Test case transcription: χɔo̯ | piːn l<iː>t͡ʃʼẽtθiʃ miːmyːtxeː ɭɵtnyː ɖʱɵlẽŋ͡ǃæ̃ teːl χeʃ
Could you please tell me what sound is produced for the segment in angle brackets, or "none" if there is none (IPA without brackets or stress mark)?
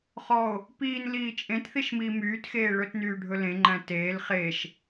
iː